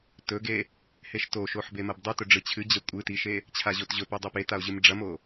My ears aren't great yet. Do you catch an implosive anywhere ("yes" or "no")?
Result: no